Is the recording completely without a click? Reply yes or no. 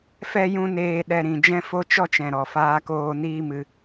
yes